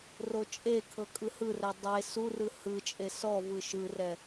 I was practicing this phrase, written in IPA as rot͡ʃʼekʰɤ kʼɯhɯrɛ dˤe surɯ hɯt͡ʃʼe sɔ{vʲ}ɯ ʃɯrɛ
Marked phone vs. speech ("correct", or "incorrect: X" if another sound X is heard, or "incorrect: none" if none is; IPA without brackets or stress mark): incorrect: v